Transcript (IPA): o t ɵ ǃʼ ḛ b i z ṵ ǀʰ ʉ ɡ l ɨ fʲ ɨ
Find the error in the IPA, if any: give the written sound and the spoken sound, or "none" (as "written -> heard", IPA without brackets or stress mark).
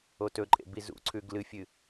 none